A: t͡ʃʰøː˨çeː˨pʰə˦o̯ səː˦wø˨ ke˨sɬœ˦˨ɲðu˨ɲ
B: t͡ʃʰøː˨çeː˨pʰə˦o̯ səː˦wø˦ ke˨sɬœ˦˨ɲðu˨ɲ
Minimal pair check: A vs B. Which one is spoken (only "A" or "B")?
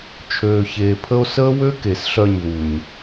B